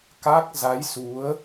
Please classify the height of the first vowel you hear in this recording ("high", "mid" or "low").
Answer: low